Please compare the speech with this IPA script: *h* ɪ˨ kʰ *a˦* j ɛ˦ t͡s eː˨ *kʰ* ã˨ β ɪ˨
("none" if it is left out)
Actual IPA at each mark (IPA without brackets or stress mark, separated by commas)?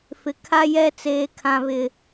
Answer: f, a˦, kʰ